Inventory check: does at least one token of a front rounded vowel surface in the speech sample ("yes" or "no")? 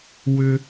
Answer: yes